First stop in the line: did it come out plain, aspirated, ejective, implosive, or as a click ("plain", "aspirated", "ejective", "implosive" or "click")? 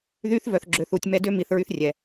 click